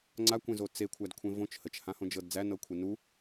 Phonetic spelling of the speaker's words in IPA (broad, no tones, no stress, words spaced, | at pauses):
ŋ͡ǀakʷẽzo t͡sekʷʰædkʷʰẽ võt͡ʃ hət͡ʃhãhõd͡ʒɤd d͡zænɤkʷʰe nu